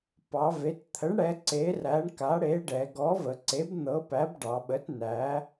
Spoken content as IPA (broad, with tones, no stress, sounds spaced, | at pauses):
p ɑ˩˧ v e˩˧ t t̪ʰ ə˨˥ ɳ ɽ ɛ˨˥ ǀ e˨˥ r æ˨˥ ɳ k a˨˥ ɽ e˨˥ ɖ ɛ˩˧ ɡ ɔ˨˥ v ə˩˧ ǀ e˨˥ b n̪ ɤ˨˥ p æ˨˥ b ɖ ɑ˩˧ ɓ ə˨˥ t n æ˨˥